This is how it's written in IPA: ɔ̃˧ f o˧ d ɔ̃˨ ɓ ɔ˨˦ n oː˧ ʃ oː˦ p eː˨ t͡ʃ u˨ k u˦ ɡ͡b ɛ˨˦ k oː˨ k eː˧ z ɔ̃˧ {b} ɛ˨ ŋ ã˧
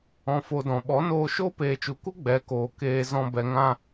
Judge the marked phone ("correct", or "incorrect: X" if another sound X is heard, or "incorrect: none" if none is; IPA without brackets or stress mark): correct